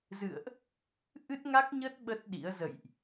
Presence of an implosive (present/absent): present